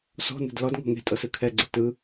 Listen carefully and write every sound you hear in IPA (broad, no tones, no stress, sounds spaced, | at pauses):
s ɔ̤ n ɛ̤ d l ɔ d ŋ ɔ̤ ŋ e̤ tʼ ɤ s ɯ kʰ ɛ ɡ͡ǀ ɛ t ɯ